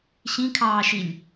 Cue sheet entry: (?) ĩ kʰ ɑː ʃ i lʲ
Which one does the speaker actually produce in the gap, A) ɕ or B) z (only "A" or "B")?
A